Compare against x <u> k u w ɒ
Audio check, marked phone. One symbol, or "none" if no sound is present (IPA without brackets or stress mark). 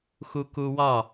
u